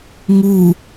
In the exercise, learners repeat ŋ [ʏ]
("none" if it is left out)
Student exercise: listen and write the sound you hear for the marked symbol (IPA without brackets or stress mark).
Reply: u